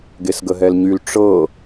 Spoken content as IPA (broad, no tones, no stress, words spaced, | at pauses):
ɡesɡəɦɛlɲyl ʈ͡ʂɤ